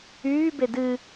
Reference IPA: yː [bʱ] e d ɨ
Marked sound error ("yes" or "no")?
yes